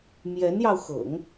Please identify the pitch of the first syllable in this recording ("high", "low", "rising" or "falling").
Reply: rising